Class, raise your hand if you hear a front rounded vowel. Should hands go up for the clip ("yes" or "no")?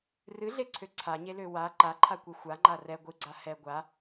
yes